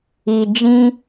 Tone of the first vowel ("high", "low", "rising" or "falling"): low